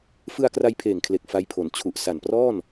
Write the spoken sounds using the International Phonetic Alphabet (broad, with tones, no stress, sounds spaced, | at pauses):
f ɯ˧ a̯ k r a˧ j pʰ eː˨˩ ŋ kʰ l e˨˩ k̚ f a˦˥ j pʰ o˨˩ n t͡ɕʰ u˨˩ ʔ s a˨˩ n p r ɔː˥˩ n